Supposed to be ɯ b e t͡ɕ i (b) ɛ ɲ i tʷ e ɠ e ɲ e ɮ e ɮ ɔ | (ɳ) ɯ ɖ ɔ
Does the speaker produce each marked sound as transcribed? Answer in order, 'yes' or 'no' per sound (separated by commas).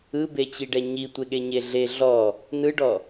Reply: no, no